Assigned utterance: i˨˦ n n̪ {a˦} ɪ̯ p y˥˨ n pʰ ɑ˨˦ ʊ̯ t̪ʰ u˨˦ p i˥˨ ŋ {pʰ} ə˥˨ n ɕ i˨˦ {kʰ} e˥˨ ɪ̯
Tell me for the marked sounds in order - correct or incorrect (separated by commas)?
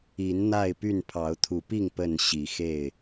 incorrect, incorrect, incorrect